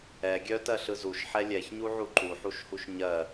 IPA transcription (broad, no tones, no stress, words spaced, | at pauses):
ɛ ɡʲœtɜɬɯ zuʃħɛ lʲɛçɲuʕu ǃuħuʃhuʃ ɲɜ